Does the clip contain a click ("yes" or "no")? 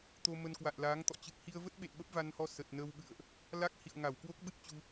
no